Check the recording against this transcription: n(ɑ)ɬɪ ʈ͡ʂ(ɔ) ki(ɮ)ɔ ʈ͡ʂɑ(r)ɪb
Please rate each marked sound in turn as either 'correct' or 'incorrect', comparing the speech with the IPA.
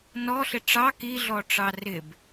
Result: incorrect, incorrect, correct, correct

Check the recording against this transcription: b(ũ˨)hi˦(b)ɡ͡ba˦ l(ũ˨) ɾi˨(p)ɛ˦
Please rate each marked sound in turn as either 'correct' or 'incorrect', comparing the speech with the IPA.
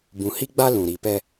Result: correct, incorrect, correct, correct

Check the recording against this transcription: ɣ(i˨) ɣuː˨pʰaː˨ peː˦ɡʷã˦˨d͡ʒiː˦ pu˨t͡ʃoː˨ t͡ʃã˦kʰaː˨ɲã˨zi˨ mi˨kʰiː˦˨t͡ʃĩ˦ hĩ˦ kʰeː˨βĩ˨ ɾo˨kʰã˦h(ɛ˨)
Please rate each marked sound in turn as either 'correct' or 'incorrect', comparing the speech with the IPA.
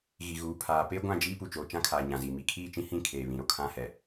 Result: correct, correct

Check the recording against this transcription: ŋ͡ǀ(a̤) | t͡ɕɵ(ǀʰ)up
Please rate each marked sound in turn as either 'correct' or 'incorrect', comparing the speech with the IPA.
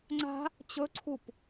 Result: correct, correct

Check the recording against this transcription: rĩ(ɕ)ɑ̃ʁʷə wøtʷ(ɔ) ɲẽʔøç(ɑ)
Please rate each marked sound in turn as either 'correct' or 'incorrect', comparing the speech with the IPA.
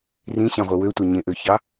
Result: correct, incorrect, correct

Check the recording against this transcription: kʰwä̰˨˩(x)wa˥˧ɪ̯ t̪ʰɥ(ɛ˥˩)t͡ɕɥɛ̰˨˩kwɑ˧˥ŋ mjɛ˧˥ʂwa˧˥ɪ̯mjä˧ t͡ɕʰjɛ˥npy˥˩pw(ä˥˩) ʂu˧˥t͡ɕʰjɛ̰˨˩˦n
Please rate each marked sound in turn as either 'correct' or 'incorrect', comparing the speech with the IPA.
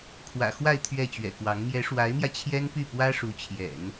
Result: correct, correct, incorrect

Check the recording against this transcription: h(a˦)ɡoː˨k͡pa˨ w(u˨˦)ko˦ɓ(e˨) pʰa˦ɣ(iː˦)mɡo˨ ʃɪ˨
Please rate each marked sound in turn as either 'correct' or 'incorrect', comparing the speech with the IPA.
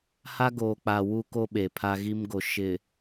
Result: correct, incorrect, correct, incorrect

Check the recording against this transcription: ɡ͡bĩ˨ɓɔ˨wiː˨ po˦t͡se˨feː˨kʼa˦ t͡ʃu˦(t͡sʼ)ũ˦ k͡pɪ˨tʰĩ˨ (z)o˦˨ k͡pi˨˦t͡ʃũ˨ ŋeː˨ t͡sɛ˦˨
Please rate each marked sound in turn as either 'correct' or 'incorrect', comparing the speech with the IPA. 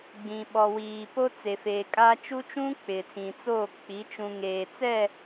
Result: incorrect, incorrect

